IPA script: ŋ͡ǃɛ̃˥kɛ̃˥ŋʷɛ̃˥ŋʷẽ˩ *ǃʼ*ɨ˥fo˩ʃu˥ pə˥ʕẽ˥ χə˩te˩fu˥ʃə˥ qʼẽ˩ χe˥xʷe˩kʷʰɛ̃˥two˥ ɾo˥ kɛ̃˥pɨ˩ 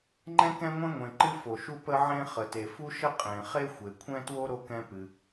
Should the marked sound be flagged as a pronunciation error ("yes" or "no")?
yes